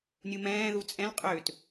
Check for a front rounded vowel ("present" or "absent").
present